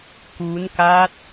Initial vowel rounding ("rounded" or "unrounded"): rounded